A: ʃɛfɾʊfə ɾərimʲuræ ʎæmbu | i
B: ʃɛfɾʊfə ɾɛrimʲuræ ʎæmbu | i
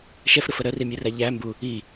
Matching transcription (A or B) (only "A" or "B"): A